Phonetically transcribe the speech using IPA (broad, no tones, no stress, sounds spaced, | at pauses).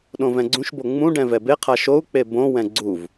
ɗ õ v ɛ̃ ɡ͡ǀ ũ ʃ b o ŋ͡m ũ ɖ ɛ̃ v ɛ b e qʰ a ʃ o u̯ k͡p e b õ w ɛ̃ ɡ͡ǀ u v